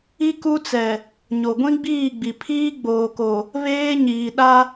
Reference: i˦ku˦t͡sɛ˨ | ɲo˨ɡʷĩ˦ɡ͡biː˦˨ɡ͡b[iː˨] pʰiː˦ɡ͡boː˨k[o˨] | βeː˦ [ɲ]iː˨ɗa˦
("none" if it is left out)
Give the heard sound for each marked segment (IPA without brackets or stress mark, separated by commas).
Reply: i˨, o˨, ɲ